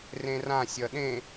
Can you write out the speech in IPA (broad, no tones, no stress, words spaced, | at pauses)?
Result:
rẽrã sʲʌɗẽ